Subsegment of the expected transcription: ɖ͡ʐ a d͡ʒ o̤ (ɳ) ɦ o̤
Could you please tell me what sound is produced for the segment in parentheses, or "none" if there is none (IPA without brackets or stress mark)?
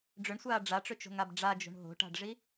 ɳ